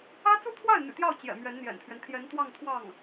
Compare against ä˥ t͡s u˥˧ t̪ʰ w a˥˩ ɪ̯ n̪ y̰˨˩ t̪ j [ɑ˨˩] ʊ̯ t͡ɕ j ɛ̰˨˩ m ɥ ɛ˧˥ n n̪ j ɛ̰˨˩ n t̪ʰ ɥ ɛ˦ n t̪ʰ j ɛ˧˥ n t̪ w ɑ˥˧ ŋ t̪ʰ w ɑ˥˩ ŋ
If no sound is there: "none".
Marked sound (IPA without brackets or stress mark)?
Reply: ɑ˥˩